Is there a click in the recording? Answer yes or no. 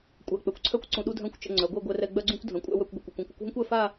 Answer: yes